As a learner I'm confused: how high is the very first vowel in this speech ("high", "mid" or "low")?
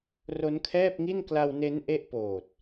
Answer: mid